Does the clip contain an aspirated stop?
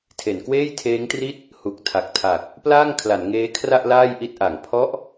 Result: yes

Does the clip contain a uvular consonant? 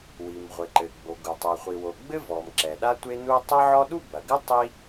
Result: yes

